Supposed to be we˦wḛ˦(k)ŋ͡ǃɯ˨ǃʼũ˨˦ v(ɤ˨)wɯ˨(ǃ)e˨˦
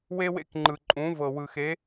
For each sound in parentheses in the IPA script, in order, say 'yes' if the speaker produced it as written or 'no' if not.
yes, yes, no

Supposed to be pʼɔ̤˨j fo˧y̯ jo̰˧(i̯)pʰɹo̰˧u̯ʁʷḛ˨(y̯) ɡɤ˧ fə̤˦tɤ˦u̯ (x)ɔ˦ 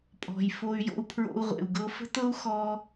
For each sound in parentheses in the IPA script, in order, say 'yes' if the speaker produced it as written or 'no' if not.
no, no, yes

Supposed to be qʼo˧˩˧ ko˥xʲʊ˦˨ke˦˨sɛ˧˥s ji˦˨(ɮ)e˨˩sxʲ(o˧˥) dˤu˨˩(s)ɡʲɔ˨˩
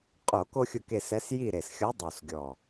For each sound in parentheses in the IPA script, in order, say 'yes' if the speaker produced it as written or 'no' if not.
no, no, yes

